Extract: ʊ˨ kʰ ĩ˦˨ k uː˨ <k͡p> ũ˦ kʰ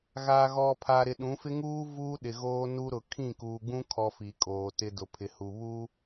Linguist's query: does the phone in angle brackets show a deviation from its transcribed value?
yes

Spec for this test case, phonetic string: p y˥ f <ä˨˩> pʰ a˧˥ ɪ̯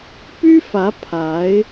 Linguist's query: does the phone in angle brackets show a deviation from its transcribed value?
yes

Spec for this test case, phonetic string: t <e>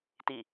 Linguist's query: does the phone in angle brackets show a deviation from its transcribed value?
yes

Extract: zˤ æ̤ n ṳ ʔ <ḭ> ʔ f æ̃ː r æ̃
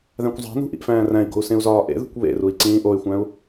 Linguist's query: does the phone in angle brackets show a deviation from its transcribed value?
no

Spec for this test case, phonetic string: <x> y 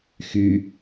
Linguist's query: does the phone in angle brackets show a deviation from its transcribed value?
no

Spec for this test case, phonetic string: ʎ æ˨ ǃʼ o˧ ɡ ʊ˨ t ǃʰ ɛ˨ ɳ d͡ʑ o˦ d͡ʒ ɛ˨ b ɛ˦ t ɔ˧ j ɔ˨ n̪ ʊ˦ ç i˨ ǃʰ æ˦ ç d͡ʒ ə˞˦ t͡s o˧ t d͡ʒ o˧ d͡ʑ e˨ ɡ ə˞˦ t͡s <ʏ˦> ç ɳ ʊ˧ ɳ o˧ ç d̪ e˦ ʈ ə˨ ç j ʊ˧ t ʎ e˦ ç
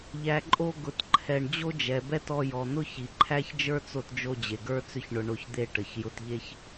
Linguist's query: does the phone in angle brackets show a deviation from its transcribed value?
no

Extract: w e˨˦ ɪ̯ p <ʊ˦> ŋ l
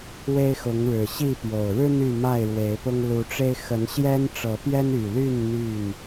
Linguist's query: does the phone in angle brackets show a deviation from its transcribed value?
no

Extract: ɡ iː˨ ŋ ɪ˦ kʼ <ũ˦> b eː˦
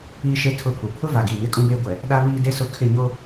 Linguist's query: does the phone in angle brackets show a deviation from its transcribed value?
no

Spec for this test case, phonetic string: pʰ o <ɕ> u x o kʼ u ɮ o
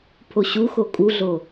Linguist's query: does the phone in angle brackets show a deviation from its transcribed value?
no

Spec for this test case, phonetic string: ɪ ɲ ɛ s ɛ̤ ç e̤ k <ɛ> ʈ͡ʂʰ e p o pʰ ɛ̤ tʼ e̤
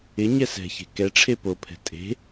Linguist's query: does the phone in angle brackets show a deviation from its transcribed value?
no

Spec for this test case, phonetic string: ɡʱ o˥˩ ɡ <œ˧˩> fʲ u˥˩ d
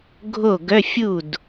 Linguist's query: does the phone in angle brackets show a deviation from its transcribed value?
yes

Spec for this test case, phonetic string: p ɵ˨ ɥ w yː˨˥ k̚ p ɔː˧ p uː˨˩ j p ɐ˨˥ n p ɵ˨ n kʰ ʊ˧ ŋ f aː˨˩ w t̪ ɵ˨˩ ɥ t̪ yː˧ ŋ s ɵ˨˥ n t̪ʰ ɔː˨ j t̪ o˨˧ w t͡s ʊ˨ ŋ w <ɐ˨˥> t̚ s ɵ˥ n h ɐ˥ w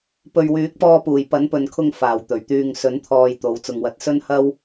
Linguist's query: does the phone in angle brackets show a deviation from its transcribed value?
no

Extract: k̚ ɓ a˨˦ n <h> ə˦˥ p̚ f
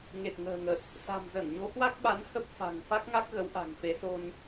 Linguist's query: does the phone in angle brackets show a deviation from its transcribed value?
no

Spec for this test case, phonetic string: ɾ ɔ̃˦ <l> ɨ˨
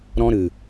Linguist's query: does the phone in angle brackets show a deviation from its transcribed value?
yes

